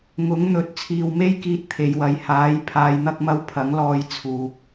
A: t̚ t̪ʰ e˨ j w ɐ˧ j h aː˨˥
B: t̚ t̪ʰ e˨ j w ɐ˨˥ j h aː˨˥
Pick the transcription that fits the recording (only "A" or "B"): B